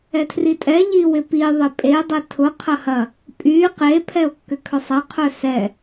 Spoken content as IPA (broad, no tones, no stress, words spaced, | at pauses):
ɛtʰritʼɛ ʎiwɪpi ðˤɪpʼe dˤetʰʊ qʰɐhɐ | pʼy qe pʰɛo̯kːʏkʰœsˤɐ qʰœsɛ